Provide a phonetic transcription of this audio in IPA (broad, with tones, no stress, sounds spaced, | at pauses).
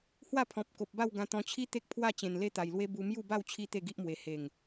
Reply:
h w a˥˧ pʰ ɔ̃˨ p̚ k o˨ p̚ b a˥˧ w ɡ ã˧ t̪ ɔ̃˧ t͡ɕʰ i˦ t̪ e˦ k̚ pʰ w a˥˧ t͡ɕ ẽ˨˩ n l e˦ t̪ a˨˩ j l w e˦ b u˧ m j u˥˧ b a˥˧ w t͡ɕʰ i˦ t̪ e˥˧ ɡ i˦ ʔ m w e˨˩ h e˨˩ ŋ